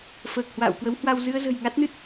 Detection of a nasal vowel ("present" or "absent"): absent